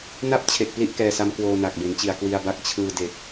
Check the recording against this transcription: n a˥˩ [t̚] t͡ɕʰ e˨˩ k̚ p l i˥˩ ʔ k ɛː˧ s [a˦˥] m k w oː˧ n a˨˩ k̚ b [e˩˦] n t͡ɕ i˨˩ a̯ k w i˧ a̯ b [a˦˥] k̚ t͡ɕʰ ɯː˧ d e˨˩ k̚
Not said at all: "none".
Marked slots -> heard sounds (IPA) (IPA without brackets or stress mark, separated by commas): p̚, a˦˥, e˩˦, a˦˥